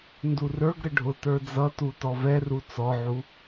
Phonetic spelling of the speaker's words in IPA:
ndurə˞ɡɾə ɖʱʊ tə˞d͡zʌtu tɔvɛru t͡sɔʕu

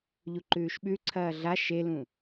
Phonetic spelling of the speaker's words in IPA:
ʎuǃʉːʃɓʉǀʰɐː ɮa ʃelũ

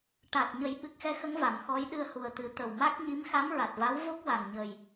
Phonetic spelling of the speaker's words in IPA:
ʈa˨˩k̚ ɲə˨˩˦jɓɨ˨˩k̚xɛ˧˥xə˧˥ŋ va˨˩mxɔ˧˥j ɗɨ˧ə̯hu˨˩ə̯t̪ɨ˨˩˦t̪ə˨˩w ma˦˥k̚ ɲi˧˥mxa˧˥mɹa˨˩t̚va˧˥w vo˦˥k̚ wa˨˩ŋɲə˨˩j

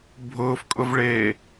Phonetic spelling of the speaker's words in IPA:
bʱʊːfkʼʊvɭeː

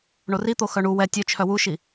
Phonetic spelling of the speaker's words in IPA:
ɳorit̪o xœɳu wɛ tʲœt͡ʃʰœ wuʃi

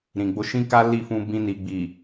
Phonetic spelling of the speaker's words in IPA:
ɾĩ˨ɡ͡bo˧ ʃĩ˦ka˦ li˦˨fũ˧ bĩ˧ni˨ɡ͡bi˨

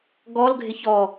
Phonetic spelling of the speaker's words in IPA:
ɡɔlɡʱɪç ɔ

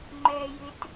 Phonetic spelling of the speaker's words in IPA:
ŋ͡ǃɛːjɪt

